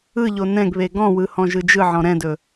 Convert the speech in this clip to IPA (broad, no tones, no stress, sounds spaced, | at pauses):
ɯ ʎ o n ɛ̃ ɡ β e ɡ ɔ̃ w ɯ h ɔ̃ ʒ ɯ d͡ʒ ɯ ʕ ɔ̃ ɾ ɛ̃ d ɵ